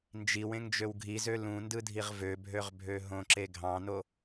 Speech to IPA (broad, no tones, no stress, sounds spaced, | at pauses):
n d͡ʒ i w ẽ ŋ d͡ʒ ø w ɡʱ i z ø l ũ n d ɯ dʱ i ʁ v ø bʱ ø ʁ bʱ ø ɦ õ ǁ e ɡʱ ɑ̃ n o